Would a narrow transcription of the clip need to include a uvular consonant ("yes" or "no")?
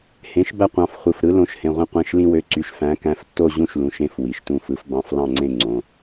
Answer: yes